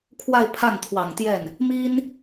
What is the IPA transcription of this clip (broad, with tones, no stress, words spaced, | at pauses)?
kʰwa˥˧ɪ̯pʰa˥˩nt̪ʰwɑ˨˩ŋt̪jɛ˥˩n | mi˥n